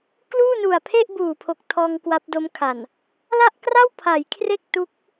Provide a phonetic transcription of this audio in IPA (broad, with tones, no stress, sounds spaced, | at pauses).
k l uː˥˩ n u˨˩ a̯ pʰ e˥˩ ʔ b uː˨˩ pʰ o˨˩ k̚ tʰ ɔː˧ ŋ k w a˦˥ p̚ d o˦˥ m kʰ a˨˩ n | l a˥˩ ʔ k r a˥˩ w pʰ a˩˦ j kʰ r e˥˩ k̚ t u˦˥ k̚